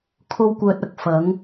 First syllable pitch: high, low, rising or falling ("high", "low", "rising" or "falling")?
high